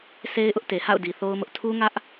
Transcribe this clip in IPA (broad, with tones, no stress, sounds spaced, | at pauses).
s e˦ ɪ̯ ʔ ʊ˦ ʔ t e˨ h a̰˦˨ ʊ̯ d i˨ θ o˦ ʊ̯ m ʊ˦ ʔ tʰ u˦ ŋ ä˦ ʔ